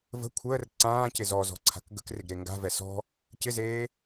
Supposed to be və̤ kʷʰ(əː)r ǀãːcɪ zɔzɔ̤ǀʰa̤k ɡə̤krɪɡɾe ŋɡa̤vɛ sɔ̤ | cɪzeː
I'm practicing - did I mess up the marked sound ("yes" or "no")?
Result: no